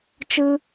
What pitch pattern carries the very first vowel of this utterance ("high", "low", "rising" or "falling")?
high